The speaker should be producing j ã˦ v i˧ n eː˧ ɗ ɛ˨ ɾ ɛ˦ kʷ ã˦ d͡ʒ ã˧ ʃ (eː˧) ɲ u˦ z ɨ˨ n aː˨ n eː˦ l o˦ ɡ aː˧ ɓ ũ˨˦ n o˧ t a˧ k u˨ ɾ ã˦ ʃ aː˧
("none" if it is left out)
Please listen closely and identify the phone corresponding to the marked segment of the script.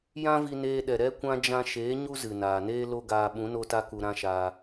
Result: eː˨˦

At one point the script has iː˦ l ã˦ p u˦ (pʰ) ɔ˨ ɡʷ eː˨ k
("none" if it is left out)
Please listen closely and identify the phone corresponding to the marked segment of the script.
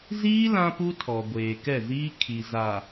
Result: tʰ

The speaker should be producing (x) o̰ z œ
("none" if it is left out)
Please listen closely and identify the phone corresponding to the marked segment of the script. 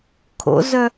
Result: kʰ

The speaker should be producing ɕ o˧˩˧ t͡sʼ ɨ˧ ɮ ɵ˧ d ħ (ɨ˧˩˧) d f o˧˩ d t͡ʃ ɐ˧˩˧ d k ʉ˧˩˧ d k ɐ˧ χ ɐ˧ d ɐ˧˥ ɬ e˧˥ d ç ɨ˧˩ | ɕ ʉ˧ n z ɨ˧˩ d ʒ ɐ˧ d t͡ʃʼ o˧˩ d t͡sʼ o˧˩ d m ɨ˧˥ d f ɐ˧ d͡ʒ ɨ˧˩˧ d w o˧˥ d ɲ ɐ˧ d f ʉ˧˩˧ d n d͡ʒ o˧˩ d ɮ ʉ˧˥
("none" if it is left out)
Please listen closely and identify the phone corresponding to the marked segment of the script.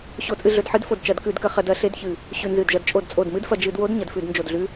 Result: ɨ˧˥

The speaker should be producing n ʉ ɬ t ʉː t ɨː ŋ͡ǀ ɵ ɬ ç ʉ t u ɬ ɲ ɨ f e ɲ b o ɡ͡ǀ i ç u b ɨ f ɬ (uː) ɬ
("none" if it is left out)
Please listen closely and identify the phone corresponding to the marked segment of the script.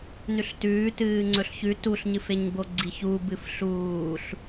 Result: uː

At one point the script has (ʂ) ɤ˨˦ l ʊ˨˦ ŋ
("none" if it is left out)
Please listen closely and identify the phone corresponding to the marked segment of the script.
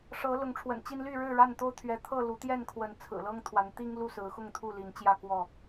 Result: ʂ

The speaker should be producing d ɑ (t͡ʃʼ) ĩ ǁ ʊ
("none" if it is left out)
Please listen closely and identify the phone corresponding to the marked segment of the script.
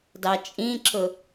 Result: t͡ʃʼ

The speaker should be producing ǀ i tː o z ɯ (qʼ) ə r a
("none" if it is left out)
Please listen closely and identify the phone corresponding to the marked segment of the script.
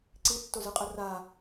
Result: qʼ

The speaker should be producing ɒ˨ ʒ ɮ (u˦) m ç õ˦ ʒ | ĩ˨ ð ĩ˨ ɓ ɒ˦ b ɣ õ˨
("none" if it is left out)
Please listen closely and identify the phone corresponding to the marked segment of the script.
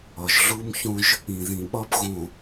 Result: u˦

